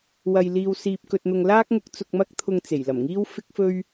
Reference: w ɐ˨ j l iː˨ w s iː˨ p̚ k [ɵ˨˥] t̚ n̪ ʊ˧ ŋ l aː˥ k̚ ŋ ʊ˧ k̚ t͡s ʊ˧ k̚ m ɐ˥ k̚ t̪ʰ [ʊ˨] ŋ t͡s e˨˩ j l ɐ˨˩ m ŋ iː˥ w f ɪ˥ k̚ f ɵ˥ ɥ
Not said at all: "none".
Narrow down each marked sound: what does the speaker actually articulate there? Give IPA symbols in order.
ɵ˧, ʊ˧

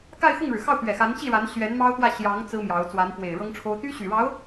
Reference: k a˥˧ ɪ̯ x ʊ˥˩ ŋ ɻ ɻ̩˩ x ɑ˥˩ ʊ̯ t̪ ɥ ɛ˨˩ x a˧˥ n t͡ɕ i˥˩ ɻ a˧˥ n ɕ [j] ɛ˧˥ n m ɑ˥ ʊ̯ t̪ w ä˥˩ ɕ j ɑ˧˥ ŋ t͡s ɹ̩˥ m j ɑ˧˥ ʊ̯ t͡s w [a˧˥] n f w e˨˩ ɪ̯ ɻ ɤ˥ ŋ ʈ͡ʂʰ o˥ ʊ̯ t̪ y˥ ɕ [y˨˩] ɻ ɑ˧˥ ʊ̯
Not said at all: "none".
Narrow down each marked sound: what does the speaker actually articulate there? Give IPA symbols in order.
ɥ, a˧˥, y˨˩

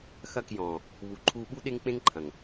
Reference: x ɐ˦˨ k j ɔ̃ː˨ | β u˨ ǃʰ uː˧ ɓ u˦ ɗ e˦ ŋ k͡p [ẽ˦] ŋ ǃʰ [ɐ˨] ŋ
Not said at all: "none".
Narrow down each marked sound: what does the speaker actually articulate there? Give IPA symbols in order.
ẽ˦, ɐ̃˨

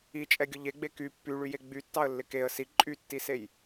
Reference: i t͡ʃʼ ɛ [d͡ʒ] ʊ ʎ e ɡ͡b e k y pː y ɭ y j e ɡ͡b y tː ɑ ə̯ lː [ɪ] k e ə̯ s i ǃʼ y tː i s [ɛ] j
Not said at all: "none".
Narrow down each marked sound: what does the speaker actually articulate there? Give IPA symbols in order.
ɡʲ, ɪ, e

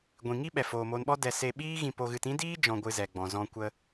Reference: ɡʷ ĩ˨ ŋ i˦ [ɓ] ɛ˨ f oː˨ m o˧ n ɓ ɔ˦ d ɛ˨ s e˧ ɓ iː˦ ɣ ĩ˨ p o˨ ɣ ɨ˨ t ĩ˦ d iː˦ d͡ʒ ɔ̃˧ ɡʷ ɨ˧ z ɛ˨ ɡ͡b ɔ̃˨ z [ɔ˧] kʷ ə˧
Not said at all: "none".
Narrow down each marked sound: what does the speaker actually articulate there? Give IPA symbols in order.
ɓ, ɔ̃˧

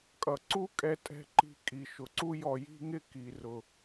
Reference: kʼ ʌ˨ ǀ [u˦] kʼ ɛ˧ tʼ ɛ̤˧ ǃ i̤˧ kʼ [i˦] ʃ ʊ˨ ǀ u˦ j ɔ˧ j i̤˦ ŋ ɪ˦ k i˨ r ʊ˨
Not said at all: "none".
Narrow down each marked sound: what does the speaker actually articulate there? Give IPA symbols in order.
u˦, i˨

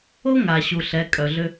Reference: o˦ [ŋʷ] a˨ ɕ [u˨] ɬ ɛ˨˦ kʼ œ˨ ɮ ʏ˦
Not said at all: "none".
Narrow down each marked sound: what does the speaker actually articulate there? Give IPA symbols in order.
ŋ, u˨

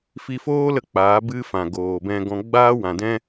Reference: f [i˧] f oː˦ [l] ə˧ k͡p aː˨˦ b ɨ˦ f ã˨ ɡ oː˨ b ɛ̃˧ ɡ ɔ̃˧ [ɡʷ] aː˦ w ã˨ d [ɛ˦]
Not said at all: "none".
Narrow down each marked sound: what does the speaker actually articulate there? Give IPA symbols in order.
i˧, l, ɡ͡b, ɛ̃˦

